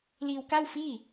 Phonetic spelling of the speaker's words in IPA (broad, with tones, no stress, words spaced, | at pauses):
liː˧wka˥˩wfiː˥˩